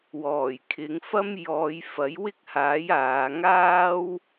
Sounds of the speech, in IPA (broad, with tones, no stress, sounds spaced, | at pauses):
w ɔː˨˩ j kʰ ɪ˨˧ ŋ f ɐ˥ m j ɔː˨˧ j f ɐ˨˥ j w ɪ˥ k̚ h aː˨˥ j aː˨˧ ŋ aː˥ w